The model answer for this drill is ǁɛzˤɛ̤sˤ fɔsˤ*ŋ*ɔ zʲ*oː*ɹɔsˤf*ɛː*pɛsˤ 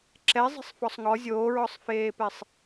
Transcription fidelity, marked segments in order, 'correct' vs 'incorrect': correct, correct, incorrect

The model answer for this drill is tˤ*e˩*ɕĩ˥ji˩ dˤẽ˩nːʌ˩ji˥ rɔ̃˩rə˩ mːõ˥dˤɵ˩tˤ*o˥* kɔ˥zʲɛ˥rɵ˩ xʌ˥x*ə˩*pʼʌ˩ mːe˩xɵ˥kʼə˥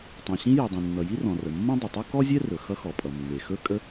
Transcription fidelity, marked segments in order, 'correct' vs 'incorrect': incorrect, correct, incorrect

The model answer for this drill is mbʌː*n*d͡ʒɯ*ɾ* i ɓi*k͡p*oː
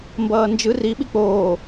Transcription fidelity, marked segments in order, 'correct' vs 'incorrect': correct, incorrect, correct

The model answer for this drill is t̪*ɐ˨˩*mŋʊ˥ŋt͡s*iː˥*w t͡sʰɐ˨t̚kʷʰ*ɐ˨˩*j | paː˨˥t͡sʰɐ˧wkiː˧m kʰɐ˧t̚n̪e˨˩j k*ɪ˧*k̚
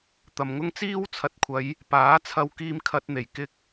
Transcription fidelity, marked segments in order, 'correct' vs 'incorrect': incorrect, correct, incorrect, incorrect

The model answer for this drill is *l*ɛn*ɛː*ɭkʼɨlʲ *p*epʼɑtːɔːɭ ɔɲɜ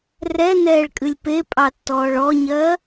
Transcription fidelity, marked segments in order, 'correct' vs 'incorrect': incorrect, correct, correct

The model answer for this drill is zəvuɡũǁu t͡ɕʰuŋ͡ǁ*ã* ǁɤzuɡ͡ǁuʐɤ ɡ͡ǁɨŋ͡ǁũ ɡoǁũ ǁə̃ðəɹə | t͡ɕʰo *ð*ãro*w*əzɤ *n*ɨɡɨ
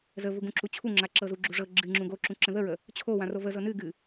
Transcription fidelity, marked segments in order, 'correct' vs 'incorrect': incorrect, incorrect, incorrect, correct

